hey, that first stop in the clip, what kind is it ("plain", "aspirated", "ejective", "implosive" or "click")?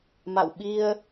implosive